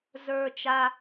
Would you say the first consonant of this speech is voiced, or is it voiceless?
voiced